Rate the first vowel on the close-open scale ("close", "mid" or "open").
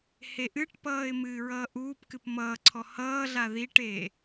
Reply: mid